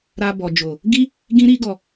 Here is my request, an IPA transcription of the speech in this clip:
ɾ a˧ b ɔ˨ d͡ʒ o˨ | ɡ i˦ | ɡ ĩ˦ ɾ i˦ ɡ ɔ˧

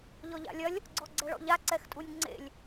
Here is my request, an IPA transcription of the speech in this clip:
ʎ ɔ ʎ a̰ lʲ ɐ lʲ | ɡ͡ǀ ɔ ɡ͡ǀ ɛ ɭ ɔ̰ ʎ a ǀ ɛ x tʼ u nʲ ŋ͡ǀ ḛ lʲ

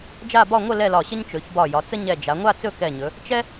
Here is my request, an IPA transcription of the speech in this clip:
d͡ʒ a˥˧ b ɒ˥˧ ŋʷ ə˥˧ l ɛ˥˧ l ɒ˧˩ ɕ ə˥ ɲ t͡ʃ ɵ˩˧ ç b ɒ˧˩ j ɒ˩˧ t͡s ə˥ ɲ ɛ˧˩ d͡ʒ a˩˧ ŋʷ a˥˧ t͡s ɵ˥˧ k ɛ˧˩ ɲ ɵ˩˧ | t͡ʃ ɛ˥

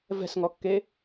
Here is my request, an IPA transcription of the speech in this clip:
v ɛ̤ s ŋ ɔ kː e

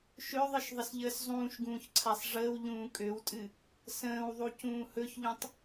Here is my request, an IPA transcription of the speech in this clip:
ʃ ø ðˤ ɨ ʃ ðˤ ə s ʎ əː s zˤ ũː ʃ ɡ ũː ç ǀʰ a sˤ ʐ əː w ʎ ũː kʼ ø w tʼ ɨ | s ə̃ː w ðˤ u c ũː h ɵ ç ʎ ũ tˤ

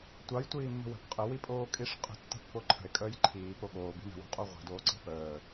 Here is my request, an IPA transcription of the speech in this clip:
tʷ ɑ j tʷ iː mː ə̤ w ə̤ p qʼ ə w i pʼ oː kʼ i ʂ qʼ ə̤ tː ə̤ pː o ǃʰ ə̤ e̯ kʼ əː j ǃʰ iː p o ɠ oː b i̤ n ə̤ w o̤ qʼ o ʁʷ i̤ d oː ǀ i̤ p əː

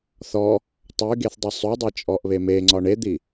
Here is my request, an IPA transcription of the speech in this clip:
θ ɔ | tˤ y ɡ e θ dˤ i sˤ y dˤ e t͡ʃʼ ɔ ʔ β e m e ŋ͡ǀ ɒ ɳ e d̪ i

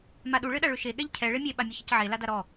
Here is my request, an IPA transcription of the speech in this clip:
m a ɗ u ɭ ɘ ɗ a ɭ ʏ ʃ e ɠ ɛ ʎ cʰ ɛ ɭ e mʲ e ɓ a mʲ ə ç ə c ʕ e l a d a ɾ ɔ

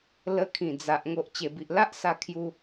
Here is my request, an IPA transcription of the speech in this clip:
l ə˧ kʰ ĩ˨˩ d͡z a˨ ʔ ŋ o˨ ʔ t͡ɕ e˨˩ b i˨ ʔ l a˦ ʔ s a˧ kʰ j u˧

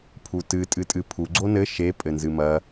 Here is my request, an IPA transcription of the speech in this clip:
pʰ u t ɨ tʼ ɨ tʼ ɨ pʰ u ɡ͡ǀ o n ɘ ʃ e pʼ ɘ n z ɨ m ɐ

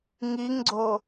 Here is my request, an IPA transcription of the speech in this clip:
ŋ i ŋ ɡ͡ǀ o

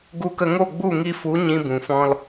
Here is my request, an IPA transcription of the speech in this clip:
ɡ u˧ k ə˧ ŋ o˦˨ ɡ͡b u˦˨ ŋ i˧ f u˨˦ ɲ ĩ˧ b ũ˨ f ɔ̃˧ l

